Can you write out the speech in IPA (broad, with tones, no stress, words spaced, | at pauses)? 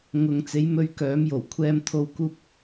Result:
ŋʊ˨ŋ t͡se˨˥jmɵ˧ɥkœː˨˥m jo˨˩w kʷʰɛː˧mt̪ʰo˧w kuː˧p̚